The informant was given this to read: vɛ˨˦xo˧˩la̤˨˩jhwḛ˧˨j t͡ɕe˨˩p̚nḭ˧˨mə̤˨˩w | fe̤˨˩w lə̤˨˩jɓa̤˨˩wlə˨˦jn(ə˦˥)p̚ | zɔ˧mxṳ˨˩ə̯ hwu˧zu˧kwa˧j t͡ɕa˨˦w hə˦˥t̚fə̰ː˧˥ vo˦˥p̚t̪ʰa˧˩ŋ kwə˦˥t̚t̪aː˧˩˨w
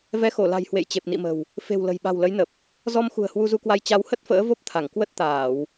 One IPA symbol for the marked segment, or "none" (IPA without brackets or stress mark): ə˨˩